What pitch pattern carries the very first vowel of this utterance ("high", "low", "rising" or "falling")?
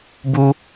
high